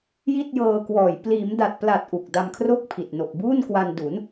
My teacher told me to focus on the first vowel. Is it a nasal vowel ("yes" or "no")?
no